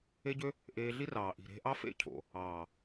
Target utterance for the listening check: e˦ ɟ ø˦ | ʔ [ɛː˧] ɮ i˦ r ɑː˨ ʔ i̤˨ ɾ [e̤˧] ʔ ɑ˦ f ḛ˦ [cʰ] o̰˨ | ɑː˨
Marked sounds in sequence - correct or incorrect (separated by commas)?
incorrect, correct, correct